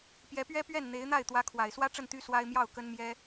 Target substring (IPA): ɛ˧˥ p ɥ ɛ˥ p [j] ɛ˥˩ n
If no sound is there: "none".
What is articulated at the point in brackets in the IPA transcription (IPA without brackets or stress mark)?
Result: ɥ